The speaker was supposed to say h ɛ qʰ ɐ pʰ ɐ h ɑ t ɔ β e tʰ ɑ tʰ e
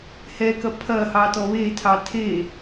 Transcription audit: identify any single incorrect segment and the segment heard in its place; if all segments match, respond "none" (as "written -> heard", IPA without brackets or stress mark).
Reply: qʰ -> k